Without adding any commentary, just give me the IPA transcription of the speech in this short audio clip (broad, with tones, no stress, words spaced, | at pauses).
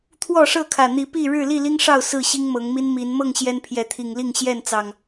t̪ʰwɔ˥˨ʂɤ˥˨kʰä˨˩ n̪i˨˦pi˥˨ ɻɻ̩˥˨li˥˨li˦ŋʂɑ˥˨ʊ̯ sɹ̩˥˨ɕi˦ŋmɤ˨˦ŋmi˦n mi˨˦n mɤ˥˨ŋ ɕjɛ˦npʰjɛ˨˦t̪ʰi˨˩ŋli˥˨ŋ ɕjɛ˥˨nt͡sɑ˨˩ŋ